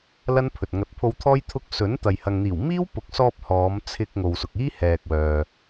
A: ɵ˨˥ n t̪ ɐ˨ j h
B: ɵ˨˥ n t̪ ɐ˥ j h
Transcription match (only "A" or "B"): A